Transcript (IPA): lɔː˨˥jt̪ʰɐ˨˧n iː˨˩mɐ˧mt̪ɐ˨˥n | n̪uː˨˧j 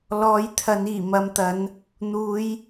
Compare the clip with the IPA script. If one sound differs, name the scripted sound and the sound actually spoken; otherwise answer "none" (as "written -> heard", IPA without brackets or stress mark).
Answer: none